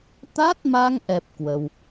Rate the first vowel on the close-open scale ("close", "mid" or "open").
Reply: open